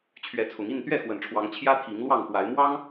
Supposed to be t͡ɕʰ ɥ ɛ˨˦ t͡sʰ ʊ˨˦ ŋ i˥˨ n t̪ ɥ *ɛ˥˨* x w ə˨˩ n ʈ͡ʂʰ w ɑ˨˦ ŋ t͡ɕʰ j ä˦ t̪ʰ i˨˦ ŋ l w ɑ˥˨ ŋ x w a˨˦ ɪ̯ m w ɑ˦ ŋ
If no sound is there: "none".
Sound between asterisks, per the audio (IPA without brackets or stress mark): ɛ˥˨